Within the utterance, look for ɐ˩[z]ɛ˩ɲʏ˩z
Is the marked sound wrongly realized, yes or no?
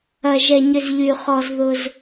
yes